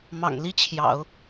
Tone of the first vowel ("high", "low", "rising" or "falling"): low